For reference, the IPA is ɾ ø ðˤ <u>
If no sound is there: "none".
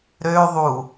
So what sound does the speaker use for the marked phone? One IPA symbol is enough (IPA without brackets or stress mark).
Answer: u